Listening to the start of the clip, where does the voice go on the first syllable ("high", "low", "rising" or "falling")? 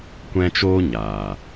high